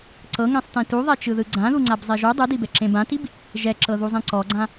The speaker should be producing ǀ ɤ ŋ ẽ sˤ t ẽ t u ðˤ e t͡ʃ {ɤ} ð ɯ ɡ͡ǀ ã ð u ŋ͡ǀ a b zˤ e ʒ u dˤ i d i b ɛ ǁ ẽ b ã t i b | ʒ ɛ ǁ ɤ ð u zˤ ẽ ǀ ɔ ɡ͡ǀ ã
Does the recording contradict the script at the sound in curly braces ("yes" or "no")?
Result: yes